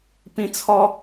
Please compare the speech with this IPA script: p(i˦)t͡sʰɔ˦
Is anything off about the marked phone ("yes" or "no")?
yes